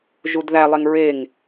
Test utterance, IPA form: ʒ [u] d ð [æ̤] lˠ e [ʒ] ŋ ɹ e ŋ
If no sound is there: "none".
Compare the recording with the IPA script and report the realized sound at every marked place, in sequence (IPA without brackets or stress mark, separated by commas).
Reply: u, æ, none